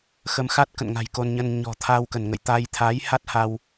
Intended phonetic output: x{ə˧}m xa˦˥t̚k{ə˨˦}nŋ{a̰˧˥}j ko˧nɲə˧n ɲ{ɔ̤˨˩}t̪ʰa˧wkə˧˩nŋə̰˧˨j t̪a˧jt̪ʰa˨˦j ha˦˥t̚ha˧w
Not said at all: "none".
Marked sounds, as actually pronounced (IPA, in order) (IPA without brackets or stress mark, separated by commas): ə˧, ə̰˧˨, a̤˨˩, ɔ̤˨˩